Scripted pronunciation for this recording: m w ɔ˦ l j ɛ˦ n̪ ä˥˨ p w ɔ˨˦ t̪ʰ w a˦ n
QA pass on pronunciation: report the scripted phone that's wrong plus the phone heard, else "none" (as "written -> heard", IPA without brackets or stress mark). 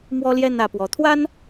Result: none